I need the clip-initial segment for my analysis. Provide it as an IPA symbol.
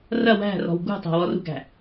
r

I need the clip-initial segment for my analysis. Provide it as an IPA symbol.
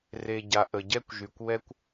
r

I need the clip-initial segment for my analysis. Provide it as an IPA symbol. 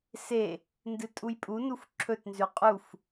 s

